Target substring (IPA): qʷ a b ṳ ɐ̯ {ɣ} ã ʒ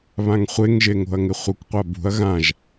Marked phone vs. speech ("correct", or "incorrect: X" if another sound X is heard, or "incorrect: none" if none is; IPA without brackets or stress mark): correct